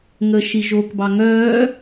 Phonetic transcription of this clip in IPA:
ŋəʃi ʒokbɑ ŋœː

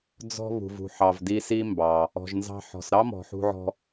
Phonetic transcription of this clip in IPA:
d͡zɔ̤˥ βṳ˩vṳ˩ħɑ˩v di˧ si˥mbɑ˩ | ɔ̤˩ʒnzɑ̤˧ ħɔ̤˩sɾɑ˥ mɔ̤˩ħṳ˧ʕɔ̤˧

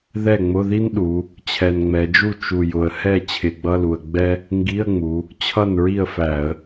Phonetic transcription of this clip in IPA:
ðɛ˥˩ŋ͡mʊ˧˥˧ði˥n ɗu˩˧ | t͡ɕʰɛ˨˩nŋ͡mɛ˩˧d͡ʒu˥˩ t͡ʃu˨˩jʊ˨˩ə̯ hɛ˥˩ t͡ɕʰɪ˧˩˧ɡ͡bʌ˧˥˧lu˨˩ə̯ ɡ͡bɛ˥ | ŋɡi˧˥˧ə̯ŋ͡mu˩˧ | t͡ɕʰʌ˥˩nɹi˥˩ə̯fæ˧˩˧ə̯

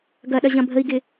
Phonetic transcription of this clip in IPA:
ɡɐɗɐ ʑɐ̃bʱəi̯ɡɪ

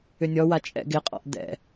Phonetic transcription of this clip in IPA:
ʏnʲɔwa t͡ʃʼɛ̰ɡɪqʼɔ̰ʔ dɛ̰

